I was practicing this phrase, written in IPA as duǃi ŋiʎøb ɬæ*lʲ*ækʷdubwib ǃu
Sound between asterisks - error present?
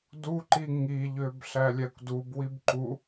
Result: no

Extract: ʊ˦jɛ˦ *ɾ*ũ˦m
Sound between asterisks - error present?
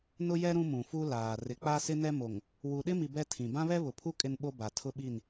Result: no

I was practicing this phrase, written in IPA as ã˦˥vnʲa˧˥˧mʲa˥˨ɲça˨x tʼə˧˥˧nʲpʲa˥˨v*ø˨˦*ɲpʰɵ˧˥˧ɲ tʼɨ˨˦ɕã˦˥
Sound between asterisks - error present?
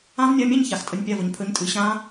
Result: yes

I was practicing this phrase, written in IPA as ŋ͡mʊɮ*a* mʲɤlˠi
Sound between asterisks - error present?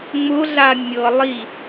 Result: no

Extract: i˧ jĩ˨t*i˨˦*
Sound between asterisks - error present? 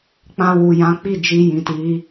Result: no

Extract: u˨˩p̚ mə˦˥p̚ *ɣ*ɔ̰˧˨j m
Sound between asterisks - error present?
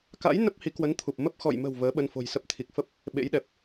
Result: yes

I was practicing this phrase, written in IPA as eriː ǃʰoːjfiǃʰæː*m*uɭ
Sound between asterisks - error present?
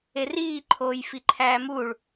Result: no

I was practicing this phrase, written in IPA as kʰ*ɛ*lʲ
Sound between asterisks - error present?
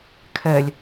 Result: no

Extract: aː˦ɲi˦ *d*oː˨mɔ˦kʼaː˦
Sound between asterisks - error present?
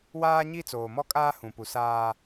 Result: yes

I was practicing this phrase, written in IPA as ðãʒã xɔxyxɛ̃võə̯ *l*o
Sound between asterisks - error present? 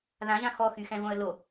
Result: no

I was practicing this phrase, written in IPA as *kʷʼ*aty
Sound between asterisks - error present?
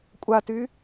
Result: no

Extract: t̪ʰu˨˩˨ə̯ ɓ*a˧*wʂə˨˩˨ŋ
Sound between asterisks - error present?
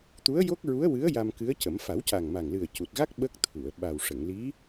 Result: yes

